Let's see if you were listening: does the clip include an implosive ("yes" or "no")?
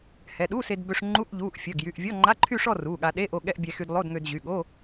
yes